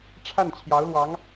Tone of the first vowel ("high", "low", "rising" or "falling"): falling